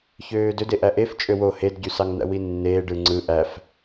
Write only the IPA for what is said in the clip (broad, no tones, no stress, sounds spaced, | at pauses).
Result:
ç øː d ø d e ʔ æ ʔ e f t͡ʃʼ ø w o h e d ɟ y s ɑ ŋ n̪ æ̰ w i nː eː ɖ ɯ ŋ͡ǀ ɯ ʔ æ f